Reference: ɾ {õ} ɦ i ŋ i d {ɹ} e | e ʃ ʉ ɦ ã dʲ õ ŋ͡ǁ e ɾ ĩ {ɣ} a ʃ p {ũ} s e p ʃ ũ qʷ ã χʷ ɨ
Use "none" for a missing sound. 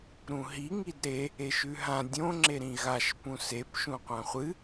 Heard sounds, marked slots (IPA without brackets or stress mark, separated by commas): ũ, ɾ, ɣ, ũ